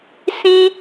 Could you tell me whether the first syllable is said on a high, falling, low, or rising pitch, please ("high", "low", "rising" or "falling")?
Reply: high